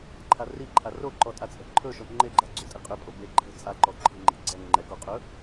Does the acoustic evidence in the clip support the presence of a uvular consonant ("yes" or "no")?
yes